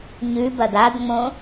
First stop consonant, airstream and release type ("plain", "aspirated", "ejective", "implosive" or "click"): plain